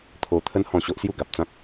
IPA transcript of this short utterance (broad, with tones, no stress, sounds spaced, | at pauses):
t̪ʰ o˧ t̪ʰ ə˦ n h ɔ̃˥˧ ɕ o˦ ʔ s j u˥˧ ɡ a˨ p̚ t͡s ã˦ k̚